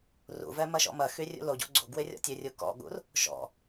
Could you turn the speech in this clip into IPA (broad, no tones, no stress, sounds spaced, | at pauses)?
r ṵ v ɛ m ɐ ʃ ɔ̰ m ɐ x y rʲ ṵ l o ɟ o̰ ɡ͡ǀ o̰ ɡ w ɪ rʲ ɔ̰ tʲ ø rʲ u k ɔ̰ ɠ ṵ r | ʃ ɔ̰